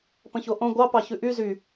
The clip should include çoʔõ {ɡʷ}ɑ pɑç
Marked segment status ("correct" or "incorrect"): correct